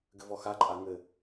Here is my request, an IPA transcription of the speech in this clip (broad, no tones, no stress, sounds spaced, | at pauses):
ɡ ɘ v ɔ x a ǃʼ a ŋ ɘ